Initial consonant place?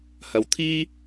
glottal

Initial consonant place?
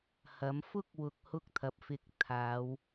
glottal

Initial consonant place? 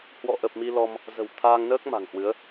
glottal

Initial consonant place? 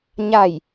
palatal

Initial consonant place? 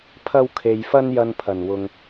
labial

